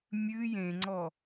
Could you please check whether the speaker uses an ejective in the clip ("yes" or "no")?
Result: no